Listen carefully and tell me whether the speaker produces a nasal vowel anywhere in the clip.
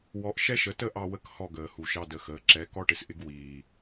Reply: no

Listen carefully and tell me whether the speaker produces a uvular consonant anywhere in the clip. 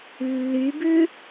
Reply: no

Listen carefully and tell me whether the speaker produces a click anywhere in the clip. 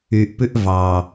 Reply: no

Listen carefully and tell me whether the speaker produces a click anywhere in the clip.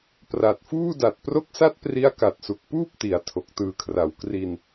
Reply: no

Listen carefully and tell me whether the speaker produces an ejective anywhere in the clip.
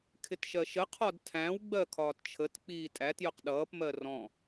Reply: yes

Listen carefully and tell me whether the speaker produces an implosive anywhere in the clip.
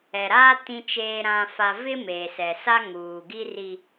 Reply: no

